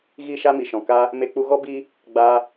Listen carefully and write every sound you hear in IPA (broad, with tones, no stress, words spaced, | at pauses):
ɣi˦˨ʃa˦mi˨ʃɔ̃˨ ka˦ | me˧k͡pu˧ɣɔ˦ bi˦ | ɡ͡ba˧